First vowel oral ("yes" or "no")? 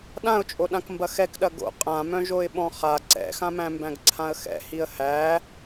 no